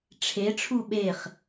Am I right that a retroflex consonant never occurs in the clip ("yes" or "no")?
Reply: no